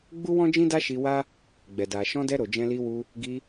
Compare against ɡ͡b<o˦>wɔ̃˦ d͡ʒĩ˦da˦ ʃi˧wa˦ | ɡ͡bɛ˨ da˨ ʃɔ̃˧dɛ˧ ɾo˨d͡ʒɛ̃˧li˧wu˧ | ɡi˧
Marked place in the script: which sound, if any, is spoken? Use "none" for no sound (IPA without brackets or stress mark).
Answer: u˦